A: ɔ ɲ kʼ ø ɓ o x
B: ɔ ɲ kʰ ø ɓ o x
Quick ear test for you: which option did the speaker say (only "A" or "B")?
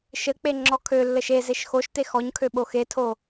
B